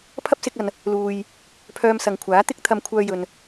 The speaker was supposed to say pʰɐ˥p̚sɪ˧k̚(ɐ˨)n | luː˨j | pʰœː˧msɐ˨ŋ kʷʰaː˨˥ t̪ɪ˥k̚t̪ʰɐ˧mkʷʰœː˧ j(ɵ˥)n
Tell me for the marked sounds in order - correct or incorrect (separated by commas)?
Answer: correct, incorrect